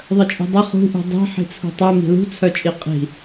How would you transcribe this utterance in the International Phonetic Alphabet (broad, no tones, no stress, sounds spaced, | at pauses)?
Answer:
ðˤ ə t͡ʃʼ i̤ dˤ ə χ ṳ ʔ ṳ dˤ i̤ ħ i̤ t͡sʰ ṳ tˤ œ m i̤ l ṳ t͡sʰ œ t͡ʃʼ i qʼ i̤